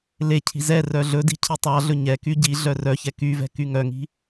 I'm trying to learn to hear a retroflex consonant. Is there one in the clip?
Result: no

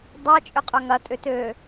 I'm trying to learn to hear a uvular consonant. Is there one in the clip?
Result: yes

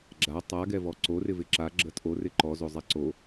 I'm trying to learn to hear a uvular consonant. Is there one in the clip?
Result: no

